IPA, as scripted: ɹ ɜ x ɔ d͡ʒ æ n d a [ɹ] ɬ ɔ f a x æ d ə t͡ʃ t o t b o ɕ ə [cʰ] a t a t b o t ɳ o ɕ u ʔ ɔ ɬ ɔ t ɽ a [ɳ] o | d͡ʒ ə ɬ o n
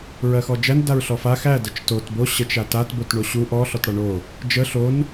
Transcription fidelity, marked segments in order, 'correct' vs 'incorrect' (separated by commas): correct, incorrect, correct